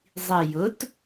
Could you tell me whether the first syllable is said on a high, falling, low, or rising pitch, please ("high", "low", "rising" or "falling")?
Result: low